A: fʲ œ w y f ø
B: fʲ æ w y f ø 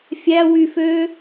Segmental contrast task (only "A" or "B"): B